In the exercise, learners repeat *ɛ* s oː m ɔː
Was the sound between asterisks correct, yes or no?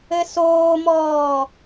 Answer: no